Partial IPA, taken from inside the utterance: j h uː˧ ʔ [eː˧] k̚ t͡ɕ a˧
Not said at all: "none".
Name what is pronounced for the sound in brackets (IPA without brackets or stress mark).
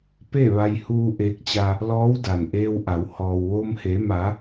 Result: eː˧˥